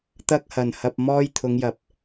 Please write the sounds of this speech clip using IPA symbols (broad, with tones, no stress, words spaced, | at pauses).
t̪ɐ˥k̚hɐ˨˩nhɐ˧p̚mɔː˥j t̪ʰʊ˨˧ŋjɐ˨˥p̚